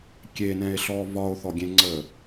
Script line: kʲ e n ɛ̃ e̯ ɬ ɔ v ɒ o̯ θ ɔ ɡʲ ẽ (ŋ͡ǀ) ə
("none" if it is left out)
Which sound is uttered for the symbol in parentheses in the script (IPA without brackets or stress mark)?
ŋ͡ǀ